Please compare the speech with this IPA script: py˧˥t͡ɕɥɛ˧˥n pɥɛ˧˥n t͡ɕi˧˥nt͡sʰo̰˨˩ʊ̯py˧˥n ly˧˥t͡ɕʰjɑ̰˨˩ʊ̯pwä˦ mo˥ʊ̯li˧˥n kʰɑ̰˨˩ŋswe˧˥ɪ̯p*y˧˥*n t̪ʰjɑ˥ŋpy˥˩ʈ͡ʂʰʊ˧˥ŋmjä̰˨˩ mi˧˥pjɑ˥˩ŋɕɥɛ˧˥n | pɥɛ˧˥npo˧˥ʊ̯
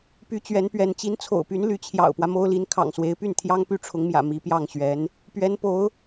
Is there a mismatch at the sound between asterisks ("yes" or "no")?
yes